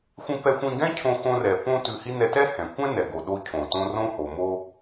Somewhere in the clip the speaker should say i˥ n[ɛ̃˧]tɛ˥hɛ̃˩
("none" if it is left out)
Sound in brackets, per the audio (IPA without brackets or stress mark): ɛ˧